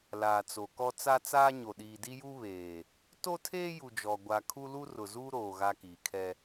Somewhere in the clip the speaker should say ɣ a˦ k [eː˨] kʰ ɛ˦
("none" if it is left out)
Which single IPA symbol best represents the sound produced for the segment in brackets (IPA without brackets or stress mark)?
iː˨